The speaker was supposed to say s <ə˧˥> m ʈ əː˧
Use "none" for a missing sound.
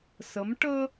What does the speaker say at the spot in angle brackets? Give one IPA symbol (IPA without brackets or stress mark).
ə˧˥